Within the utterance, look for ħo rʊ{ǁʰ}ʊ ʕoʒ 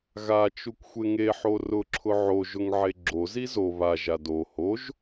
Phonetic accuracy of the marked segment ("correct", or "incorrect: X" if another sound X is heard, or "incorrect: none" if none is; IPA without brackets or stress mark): correct